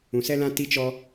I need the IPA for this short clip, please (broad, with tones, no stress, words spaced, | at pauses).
ũ˨sɛ˦lã˦ ti˦t͡ʃɔ˦